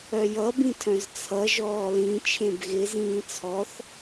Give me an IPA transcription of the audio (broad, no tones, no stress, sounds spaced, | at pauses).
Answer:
œ j ʌ b ĩ tʰ œ̃ z t͡sʰ ʌ ʒ ɔː l ĩ t͡ʃʰ ẽ b ɣ ɪ z ĩː t͡sʰ ɔ θ